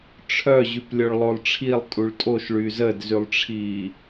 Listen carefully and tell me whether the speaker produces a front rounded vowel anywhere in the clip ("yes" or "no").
yes